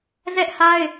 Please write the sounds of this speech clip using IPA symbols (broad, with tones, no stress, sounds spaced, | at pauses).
z ɛ˦ ʔ h a˦ ɪ̯